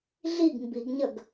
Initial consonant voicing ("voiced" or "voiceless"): voiced